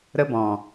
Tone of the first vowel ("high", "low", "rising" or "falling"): high